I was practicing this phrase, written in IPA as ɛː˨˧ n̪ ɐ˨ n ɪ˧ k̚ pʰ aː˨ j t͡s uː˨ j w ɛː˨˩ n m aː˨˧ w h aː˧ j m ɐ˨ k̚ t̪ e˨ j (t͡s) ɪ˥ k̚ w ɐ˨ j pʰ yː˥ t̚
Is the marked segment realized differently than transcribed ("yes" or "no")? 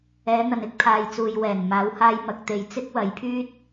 no